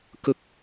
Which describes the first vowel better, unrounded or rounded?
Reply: unrounded